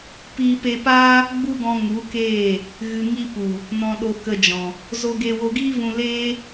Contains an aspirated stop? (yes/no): no